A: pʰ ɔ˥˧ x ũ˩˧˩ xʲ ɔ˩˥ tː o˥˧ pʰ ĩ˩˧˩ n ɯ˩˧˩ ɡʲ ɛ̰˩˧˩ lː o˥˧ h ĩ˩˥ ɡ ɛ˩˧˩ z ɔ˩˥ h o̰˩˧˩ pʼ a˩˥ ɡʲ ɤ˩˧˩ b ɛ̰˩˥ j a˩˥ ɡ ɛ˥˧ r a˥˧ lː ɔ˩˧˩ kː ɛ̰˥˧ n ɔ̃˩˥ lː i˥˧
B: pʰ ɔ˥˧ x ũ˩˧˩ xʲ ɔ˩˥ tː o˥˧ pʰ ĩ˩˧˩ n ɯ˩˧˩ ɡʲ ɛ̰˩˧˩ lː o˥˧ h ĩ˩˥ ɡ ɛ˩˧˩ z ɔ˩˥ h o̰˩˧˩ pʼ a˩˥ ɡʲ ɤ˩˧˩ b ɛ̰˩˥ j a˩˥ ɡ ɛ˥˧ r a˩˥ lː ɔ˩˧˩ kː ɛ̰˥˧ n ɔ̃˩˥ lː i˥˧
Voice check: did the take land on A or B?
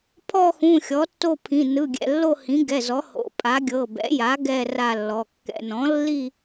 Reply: A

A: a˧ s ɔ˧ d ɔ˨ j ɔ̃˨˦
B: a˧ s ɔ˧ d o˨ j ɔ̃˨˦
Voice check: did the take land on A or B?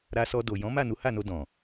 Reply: B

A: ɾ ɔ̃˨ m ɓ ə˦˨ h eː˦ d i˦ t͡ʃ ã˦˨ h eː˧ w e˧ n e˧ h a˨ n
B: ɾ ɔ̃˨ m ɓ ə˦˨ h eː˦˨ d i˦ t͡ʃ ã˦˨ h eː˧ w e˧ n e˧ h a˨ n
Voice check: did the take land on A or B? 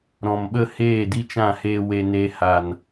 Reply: B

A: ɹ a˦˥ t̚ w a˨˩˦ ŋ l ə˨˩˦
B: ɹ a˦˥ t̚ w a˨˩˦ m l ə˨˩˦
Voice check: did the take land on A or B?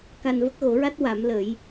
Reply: B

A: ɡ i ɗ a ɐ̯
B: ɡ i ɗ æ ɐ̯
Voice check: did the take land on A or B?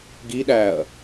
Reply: B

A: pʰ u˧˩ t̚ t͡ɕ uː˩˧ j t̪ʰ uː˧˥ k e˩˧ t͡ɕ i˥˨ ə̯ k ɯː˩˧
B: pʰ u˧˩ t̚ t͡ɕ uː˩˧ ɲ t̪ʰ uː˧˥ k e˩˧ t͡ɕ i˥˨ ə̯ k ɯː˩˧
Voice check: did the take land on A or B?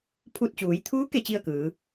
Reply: A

